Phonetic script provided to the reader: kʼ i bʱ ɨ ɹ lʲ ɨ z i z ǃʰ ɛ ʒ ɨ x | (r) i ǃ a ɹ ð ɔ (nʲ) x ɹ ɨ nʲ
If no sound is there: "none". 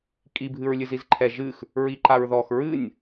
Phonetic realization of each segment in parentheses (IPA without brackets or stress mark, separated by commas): ɹ, none